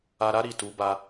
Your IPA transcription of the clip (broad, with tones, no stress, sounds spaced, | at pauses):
a˨ ɾ a˨˦ ɾ i˦˨ t u˨˦ b a˧